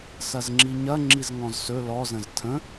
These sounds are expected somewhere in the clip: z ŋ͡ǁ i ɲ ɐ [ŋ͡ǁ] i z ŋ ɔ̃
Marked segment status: correct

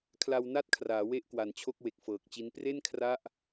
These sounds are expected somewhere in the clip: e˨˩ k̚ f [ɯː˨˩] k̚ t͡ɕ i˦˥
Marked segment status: incorrect: ɤː˨˩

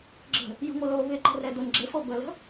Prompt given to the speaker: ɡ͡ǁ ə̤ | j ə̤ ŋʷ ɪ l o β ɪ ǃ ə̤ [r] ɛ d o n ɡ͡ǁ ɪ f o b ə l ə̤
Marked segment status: correct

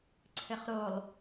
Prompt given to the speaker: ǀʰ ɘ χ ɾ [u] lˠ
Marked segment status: incorrect: o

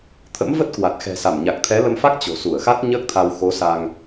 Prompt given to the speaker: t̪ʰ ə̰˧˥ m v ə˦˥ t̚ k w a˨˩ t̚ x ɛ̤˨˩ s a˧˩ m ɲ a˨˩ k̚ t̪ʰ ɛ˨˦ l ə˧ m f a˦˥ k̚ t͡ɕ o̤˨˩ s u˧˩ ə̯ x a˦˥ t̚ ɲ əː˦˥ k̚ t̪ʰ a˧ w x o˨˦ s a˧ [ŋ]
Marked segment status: correct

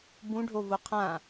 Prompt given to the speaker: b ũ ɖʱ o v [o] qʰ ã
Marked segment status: correct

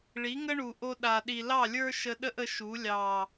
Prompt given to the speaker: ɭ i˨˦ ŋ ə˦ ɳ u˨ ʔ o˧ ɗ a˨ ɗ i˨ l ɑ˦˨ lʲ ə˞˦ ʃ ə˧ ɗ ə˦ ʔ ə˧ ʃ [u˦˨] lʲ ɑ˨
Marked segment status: incorrect: u˨˦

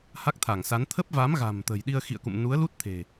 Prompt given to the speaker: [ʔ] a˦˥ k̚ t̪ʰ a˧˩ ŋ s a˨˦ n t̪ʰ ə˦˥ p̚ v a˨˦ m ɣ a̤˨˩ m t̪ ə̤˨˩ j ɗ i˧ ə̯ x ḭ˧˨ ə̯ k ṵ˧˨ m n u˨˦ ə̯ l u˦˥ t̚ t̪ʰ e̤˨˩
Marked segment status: incorrect: h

